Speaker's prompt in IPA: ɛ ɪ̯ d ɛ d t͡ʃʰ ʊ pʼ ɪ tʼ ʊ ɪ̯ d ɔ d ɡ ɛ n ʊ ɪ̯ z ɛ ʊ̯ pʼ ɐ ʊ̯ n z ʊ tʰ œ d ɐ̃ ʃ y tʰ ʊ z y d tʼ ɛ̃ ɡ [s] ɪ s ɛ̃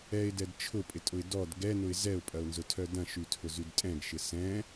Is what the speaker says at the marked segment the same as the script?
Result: no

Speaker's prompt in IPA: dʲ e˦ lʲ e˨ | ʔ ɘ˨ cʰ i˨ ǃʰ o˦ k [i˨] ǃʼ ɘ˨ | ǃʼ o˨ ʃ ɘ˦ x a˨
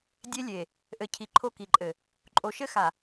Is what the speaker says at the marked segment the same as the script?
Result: yes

